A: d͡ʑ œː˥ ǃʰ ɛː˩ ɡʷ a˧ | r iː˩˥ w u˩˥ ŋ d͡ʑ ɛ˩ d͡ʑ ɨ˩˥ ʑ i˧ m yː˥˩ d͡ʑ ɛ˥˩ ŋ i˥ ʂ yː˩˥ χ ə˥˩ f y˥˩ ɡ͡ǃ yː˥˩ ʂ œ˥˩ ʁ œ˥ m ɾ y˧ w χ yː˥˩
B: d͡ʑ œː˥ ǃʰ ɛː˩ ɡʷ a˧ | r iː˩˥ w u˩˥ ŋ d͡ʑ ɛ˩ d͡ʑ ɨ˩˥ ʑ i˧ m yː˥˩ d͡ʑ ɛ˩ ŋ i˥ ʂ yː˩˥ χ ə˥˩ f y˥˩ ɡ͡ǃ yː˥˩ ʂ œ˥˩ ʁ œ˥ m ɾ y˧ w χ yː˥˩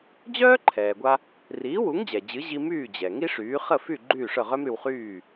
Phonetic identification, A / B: B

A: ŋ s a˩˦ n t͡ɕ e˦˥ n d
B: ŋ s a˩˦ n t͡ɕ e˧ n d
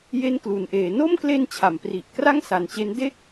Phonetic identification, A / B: A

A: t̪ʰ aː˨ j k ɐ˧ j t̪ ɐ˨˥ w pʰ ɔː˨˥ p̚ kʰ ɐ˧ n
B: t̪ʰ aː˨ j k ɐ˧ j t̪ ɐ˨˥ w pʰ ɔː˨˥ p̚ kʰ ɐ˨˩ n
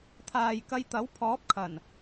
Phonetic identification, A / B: B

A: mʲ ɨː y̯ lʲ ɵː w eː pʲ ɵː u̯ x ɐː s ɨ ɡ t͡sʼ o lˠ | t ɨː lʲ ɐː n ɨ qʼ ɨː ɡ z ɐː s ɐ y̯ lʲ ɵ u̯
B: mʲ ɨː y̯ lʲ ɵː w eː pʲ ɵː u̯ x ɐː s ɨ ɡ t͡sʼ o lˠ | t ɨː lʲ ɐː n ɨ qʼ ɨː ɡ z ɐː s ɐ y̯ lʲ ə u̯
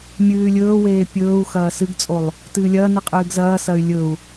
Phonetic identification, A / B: A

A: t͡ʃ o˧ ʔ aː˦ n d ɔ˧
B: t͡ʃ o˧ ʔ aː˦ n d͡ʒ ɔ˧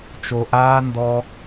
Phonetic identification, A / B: A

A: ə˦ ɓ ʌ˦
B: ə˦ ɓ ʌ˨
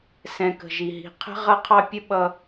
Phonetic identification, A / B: A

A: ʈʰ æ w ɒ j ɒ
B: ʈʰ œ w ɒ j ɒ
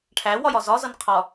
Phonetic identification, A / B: A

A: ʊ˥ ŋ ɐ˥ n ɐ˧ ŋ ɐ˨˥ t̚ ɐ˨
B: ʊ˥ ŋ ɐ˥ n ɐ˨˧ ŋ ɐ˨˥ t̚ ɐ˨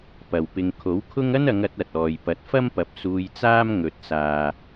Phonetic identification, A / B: B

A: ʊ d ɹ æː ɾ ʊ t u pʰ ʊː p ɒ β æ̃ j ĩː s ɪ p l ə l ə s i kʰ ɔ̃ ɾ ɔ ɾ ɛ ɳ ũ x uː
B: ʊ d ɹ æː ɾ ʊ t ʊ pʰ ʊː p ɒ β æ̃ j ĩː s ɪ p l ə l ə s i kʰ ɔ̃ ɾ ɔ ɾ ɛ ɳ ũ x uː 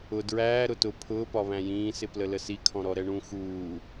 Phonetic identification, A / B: B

